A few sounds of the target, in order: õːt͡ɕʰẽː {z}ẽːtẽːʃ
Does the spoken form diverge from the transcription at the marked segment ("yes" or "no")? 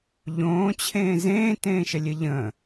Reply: no